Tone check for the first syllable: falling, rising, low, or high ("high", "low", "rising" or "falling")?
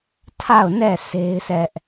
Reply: falling